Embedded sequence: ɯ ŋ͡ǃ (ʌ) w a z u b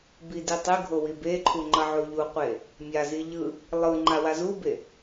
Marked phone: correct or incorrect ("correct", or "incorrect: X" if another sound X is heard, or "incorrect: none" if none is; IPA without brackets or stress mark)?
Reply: incorrect: a